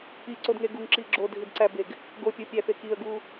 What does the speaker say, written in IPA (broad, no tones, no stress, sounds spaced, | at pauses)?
i ǀ o d ŋ e ɡ u ŋ ǁ i ɡ͡ǁ o dʱ i d ǀ æ b e ɡ | ɡ o pʲ o pʲ æ f e k i ə̯ ɡ u